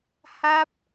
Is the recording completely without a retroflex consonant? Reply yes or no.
yes